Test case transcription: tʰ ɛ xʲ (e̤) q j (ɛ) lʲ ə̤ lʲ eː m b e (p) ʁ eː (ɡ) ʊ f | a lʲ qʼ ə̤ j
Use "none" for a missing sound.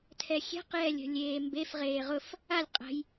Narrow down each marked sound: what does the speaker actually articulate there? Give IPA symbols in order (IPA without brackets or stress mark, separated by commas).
e̤, ɛ, f, ʁ